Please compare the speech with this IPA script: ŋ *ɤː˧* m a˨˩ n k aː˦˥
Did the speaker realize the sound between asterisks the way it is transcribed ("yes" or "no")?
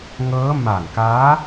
no